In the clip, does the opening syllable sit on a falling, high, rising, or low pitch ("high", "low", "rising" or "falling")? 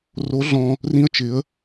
rising